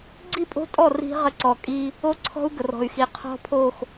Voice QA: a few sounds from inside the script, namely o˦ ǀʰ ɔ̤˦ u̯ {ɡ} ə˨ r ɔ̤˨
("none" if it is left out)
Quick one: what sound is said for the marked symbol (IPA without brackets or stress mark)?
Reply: ɡ